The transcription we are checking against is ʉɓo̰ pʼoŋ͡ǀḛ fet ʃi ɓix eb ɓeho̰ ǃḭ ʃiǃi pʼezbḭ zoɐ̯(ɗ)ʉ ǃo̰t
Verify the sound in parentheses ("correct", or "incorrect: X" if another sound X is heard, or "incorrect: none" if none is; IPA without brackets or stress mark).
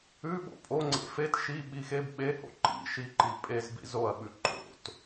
incorrect: ɓ